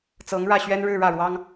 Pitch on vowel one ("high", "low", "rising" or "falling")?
rising